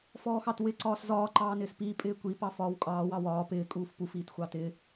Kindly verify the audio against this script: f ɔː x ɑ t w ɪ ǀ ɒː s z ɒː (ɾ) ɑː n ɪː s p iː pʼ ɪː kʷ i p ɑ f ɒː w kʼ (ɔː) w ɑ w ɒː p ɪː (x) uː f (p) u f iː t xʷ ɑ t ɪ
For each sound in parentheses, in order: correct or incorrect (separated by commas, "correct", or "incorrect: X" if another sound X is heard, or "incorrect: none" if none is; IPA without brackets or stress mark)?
incorrect: ǃ, incorrect: ɑː, incorrect: kʼ, correct